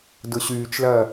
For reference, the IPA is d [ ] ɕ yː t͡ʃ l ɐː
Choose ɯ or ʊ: ʊ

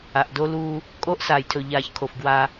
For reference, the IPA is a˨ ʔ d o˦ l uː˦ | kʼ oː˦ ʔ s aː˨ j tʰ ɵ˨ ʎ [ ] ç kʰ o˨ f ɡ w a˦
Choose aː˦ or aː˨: aː˨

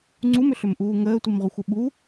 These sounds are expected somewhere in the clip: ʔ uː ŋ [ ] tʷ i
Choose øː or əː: əː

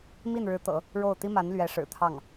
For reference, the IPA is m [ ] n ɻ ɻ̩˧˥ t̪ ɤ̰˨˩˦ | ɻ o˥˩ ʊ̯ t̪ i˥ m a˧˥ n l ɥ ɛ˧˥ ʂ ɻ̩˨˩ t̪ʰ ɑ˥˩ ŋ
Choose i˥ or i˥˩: i˥˩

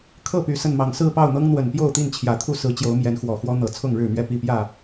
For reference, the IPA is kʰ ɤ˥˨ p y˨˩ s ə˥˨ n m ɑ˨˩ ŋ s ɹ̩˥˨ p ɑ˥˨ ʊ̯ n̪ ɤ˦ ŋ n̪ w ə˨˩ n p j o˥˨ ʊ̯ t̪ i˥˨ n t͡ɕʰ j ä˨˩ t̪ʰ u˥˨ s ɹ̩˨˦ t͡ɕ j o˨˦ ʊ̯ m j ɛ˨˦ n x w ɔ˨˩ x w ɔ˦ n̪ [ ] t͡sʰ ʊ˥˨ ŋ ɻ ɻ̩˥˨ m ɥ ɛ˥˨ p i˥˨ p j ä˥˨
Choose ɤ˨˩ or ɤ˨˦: ɤ˨˩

